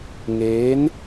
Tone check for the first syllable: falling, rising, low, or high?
rising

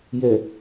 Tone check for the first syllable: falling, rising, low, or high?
low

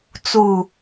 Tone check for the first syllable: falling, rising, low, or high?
falling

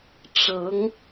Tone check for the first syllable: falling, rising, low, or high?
rising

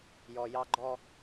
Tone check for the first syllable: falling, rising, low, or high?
low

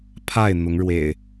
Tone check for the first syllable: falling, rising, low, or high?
falling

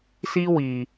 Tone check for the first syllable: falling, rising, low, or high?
high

